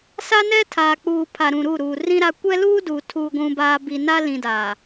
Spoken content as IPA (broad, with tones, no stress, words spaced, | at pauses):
sa˦nɛ˦tʰaː˨k͡puː˨ pʰa˨ɾũ˨ɾu˦˨ ɾuː˨rĩ˦ɾa˦ kʷɛ˦luː˦du˨ tʰuː˨ɡʷũ˨baː˨ bi˨na˦ lĩ˨daː˨